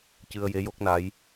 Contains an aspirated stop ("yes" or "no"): no